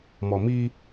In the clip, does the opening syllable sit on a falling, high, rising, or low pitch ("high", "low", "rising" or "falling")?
low